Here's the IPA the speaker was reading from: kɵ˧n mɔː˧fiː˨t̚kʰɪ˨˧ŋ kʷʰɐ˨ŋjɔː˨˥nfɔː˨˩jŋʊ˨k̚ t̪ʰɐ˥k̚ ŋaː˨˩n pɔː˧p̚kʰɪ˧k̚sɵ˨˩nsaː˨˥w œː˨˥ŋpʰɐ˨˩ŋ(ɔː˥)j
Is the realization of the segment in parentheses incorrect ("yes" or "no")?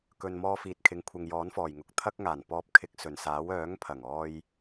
yes